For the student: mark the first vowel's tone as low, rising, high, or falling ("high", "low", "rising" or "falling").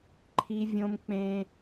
high